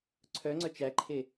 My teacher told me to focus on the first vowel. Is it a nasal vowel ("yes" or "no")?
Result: no